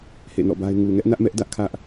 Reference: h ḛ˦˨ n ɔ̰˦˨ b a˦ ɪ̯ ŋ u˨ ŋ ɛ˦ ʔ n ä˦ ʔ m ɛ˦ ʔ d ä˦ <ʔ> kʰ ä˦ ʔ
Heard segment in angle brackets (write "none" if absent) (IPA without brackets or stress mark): ʔ